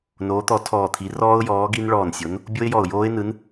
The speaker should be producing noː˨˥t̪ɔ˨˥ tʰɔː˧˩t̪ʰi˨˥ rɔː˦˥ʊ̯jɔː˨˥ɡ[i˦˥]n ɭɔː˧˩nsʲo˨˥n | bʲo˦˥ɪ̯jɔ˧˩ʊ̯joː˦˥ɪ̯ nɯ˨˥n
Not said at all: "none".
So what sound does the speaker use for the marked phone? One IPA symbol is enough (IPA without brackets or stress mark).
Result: i˦˥